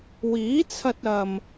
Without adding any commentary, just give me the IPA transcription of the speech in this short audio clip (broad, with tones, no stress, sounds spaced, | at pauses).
w iː˨˥ t͡sʰ ɐ˧ t̚ ɐ˨ m